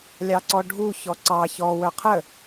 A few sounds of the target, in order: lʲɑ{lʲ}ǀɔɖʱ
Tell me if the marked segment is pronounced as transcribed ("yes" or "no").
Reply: no